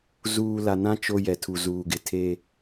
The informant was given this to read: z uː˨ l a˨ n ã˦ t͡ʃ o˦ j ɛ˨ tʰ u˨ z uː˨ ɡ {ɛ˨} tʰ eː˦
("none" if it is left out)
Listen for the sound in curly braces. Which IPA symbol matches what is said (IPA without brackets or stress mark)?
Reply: ɪ˨